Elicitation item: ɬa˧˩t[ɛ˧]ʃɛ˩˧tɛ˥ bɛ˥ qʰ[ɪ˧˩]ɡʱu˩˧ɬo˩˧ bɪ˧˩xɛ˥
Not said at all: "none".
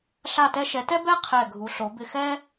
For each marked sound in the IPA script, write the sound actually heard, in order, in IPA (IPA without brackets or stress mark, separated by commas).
ɛ˧, ɛ˧˩